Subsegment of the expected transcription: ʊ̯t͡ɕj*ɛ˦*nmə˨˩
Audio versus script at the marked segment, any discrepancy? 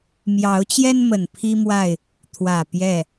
no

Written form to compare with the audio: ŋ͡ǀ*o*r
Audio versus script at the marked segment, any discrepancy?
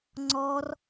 yes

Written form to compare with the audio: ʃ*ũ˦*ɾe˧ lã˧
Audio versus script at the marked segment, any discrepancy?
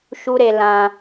yes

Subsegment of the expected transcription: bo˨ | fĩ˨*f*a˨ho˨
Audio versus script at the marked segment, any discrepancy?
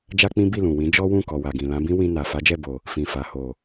no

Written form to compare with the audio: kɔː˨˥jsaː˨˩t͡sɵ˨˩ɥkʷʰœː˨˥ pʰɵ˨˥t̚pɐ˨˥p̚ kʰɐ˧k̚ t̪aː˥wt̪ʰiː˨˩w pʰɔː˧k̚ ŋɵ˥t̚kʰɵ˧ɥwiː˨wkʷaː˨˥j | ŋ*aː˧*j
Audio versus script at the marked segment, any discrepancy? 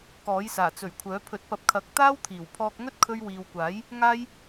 no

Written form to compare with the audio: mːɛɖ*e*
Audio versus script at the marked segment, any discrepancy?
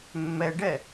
yes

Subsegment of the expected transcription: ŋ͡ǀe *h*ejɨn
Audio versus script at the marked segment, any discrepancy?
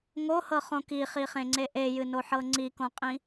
yes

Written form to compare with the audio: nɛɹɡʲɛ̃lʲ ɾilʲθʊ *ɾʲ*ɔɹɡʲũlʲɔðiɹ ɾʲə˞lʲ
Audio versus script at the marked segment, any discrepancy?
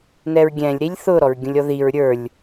yes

